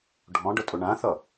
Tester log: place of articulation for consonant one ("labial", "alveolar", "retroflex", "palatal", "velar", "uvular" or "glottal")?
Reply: retroflex